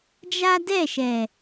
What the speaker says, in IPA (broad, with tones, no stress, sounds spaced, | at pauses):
d͡ʒ a˦ d ɛ˦˨ ʃ ɛ˨